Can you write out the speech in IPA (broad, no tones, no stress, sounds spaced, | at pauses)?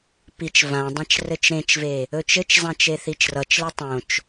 p i t͡ʃ v ã dˤ ã t͡ʃ r ɘ t͡ʃ ɾ ẽ t͡ʃ v e | ɵ t͡ʃ ɘ t͡ʃ zˤ ã t͡ʃ e θ i t͡ʃ r ʌ t͡ʃ l e tˤ õ t͡ʃ